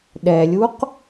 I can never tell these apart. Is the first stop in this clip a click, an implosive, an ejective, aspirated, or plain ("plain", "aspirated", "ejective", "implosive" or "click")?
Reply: implosive